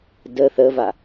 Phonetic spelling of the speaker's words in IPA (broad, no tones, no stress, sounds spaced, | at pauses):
d ə θ ə v a